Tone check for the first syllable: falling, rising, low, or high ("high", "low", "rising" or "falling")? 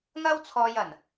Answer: high